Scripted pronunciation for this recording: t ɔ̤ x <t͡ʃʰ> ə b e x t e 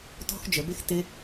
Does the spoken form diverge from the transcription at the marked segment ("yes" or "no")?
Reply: yes